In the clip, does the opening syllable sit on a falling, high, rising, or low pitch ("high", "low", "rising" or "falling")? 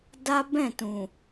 high